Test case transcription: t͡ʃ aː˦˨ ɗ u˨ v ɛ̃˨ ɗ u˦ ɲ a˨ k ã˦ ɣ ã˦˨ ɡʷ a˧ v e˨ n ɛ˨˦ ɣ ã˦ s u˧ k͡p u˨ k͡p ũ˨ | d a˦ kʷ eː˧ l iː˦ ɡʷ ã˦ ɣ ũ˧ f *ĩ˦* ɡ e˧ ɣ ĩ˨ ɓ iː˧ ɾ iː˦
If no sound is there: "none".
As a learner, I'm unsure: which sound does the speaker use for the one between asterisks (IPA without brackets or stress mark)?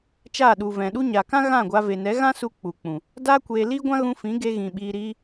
ĩ˨˦